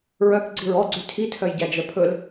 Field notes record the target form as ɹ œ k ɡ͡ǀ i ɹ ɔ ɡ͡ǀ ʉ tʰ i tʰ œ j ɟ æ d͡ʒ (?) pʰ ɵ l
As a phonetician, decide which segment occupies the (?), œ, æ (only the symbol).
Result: œ